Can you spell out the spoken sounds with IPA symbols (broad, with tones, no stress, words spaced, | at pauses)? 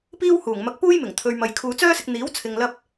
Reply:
piː˥whuː˨˩ŋmɐ˧k̚ puː˥jmɪ˨˩ŋt̪ʰɵ˨ɥmɐ˨j kʰuː˨t͡sœː˥sɪ˧k̚ n̪iː˨˥wt͡sʰɪ˨ŋ lɐ˧p̚